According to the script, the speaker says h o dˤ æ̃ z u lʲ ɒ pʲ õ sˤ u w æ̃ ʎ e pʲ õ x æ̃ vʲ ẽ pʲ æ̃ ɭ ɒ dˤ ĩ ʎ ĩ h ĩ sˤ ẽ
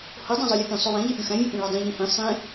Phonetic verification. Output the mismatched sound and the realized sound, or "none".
z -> zˤ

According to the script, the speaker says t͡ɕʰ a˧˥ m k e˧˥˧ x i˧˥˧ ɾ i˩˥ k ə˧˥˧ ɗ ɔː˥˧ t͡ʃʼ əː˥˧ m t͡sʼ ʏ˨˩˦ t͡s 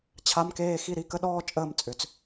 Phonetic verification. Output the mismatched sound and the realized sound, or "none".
e˧˥˧ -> eː˧˥˧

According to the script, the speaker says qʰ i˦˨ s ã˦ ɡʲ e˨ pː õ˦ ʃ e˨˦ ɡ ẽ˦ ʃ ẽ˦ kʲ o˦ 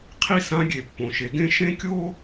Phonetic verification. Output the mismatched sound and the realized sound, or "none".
õ˦ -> õ˨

